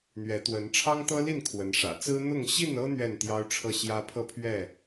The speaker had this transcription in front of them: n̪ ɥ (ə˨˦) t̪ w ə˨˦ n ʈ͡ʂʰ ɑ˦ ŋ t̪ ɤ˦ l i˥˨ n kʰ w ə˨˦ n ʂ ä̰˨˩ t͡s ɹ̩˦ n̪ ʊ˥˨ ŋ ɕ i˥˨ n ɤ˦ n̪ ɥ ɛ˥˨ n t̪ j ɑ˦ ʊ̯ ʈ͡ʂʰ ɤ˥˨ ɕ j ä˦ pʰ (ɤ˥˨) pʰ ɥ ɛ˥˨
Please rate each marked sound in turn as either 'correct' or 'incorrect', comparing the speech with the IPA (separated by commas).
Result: incorrect, correct